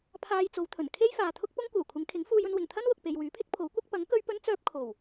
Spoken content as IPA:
pʰ aː˧ j t͡s o˨˧ w t̪ʰ ɵ˨˩ n kʰ e˥ j f aː˨ t̪ʰ ʊ˥ k̚ p ʊ˥ ŋ kʷ œː˨˩ kʷʰ ɪ˨˧ ŋ kʰ ɪ˨˥ ŋ f uː˧ j ɵ˧ n w ɪ˨˩ ŋ t̪ʰ ɐ˥ n w ʊ˨ k̚ p e˨ j w yː˨˥ pʰ ɪ˥ k̚ pʰ o˨˥ w kʷ ɐ˥ k̚ p ɐ˨˥ ŋ k ɵ˥ ɥ p ɵ˥ n t͡s œː˧ p̚ kʰ o˨˩ w

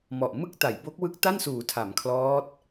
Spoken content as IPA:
m ɔ˨˩ ʔ m ɯ˥˩ k̚ t a˩˦ j b o˦˥ k̚ w ɯ˦˥ k̚ t a˥˩ n s uː˩˦ tʰ a˩˦ m kʰ l ɔː˦˥ t̚

